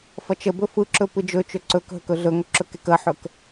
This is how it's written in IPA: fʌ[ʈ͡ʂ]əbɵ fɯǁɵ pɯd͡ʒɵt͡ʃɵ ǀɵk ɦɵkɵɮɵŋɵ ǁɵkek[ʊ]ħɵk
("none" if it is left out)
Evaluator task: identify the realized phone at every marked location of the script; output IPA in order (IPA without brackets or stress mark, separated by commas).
t͡ʃ, ə